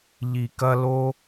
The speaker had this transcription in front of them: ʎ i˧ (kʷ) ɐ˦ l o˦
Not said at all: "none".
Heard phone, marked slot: k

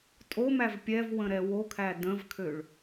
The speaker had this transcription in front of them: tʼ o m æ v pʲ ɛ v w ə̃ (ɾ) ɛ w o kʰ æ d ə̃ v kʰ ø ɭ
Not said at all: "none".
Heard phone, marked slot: ɾ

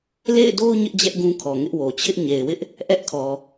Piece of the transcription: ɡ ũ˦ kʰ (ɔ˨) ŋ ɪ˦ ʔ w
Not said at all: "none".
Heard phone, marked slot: ɔ˨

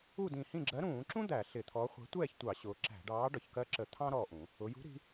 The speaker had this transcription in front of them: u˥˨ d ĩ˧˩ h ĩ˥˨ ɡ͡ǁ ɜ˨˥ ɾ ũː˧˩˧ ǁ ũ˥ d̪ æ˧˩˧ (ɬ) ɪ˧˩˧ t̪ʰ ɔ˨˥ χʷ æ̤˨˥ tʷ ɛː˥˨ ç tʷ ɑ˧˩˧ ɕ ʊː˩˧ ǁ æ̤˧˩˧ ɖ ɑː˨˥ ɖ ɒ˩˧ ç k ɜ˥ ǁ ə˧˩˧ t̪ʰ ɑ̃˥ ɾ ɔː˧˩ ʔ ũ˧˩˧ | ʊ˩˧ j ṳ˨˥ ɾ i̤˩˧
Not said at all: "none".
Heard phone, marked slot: ɬ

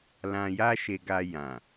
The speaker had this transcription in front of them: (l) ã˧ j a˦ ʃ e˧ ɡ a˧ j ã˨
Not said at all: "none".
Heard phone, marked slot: l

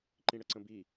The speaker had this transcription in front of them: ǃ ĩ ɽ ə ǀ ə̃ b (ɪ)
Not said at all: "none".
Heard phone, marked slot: i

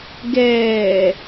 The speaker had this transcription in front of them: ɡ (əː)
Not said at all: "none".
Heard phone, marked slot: ɛː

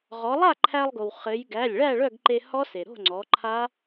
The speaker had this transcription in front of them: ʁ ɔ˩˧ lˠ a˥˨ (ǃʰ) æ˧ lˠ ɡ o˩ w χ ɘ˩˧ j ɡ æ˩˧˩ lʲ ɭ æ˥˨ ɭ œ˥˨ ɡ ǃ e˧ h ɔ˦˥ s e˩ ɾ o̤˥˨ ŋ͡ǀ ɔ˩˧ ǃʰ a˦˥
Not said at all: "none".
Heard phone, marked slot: ǃʰ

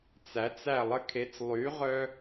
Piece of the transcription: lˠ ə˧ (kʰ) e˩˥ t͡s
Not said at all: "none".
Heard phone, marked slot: kʰ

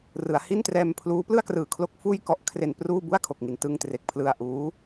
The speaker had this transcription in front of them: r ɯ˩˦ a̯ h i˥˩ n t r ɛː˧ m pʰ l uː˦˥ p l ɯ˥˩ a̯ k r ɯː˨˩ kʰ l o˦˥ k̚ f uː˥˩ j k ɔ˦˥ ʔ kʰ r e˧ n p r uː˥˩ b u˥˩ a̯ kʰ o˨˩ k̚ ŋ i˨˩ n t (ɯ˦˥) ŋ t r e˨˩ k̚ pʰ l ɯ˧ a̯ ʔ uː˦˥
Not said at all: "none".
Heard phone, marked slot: ɯ˧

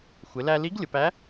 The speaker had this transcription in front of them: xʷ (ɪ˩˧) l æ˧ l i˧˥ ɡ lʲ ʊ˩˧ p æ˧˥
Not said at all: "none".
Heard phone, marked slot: ɪ˩˧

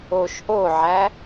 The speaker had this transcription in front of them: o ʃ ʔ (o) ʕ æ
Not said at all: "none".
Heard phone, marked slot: o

